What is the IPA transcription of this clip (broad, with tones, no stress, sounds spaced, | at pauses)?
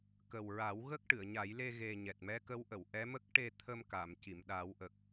k ə˨˩ w ɹ a˨˩˦ w ɣ ə˦˥ k̚ ʈ ɨ˨˩˨ ə̯ ɲ a˨˩˦ j l e˧ ɣ e˨˩ ɲ ɛ˨˩ t̚ m ɛ˧˥ k ə˧˥ w ʔ ə˨˩˨ w ʔ ɛ˧˥ m ə˦˥ k̚ ʈ e˧ t̪ʰ ə˧ m k a˨˩˨ m c i˨˩˨ m ɗ a˨˩˦ w ʔ ə˨˩ k̚